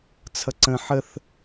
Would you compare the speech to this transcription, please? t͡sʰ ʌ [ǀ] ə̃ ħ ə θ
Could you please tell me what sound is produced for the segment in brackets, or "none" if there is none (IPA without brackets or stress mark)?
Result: ǀ